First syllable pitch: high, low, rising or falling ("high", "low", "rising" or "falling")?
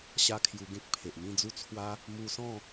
high